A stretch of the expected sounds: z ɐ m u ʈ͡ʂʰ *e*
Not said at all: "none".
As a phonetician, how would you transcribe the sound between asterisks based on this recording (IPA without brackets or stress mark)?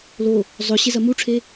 e